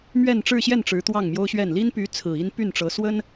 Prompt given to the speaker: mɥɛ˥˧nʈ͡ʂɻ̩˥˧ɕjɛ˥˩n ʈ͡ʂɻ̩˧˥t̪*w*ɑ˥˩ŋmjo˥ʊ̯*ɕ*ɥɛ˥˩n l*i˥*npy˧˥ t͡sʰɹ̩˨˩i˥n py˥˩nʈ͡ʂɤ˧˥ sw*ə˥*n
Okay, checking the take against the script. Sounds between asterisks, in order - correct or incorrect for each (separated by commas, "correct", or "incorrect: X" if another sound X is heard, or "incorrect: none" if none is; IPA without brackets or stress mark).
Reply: correct, correct, correct, correct